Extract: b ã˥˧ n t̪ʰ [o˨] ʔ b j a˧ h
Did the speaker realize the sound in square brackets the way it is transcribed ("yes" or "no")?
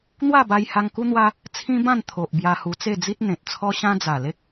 yes